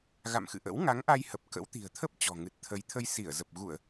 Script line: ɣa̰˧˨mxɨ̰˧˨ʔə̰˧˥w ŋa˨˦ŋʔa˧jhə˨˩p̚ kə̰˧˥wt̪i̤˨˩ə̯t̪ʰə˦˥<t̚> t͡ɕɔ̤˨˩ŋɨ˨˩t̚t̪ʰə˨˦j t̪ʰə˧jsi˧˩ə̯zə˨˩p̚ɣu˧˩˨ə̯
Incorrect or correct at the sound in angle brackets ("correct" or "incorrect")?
incorrect